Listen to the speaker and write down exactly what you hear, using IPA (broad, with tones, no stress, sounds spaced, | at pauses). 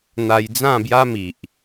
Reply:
n̪ a˧ j d͡z ã˥˧ b j a˦ m i˨ ʔ